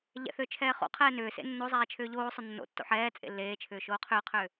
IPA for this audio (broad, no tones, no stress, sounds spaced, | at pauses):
ʎ ɛ̰ θ ʏː t͡ʃʰ ɛː χ o̰ qʰ ɛː n ʏː s ḛ nː o zˤ ɛː t͡ʃʰ ʏː ʎ oː sˤ ʏ nː o̰ tː o̰ ħ ɛː t͡sʼ ḛ lː eː t͡ʃʰ ʏː ʃ oː qʰ ʏː qʰ ʏː